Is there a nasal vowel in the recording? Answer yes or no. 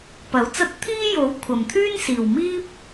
no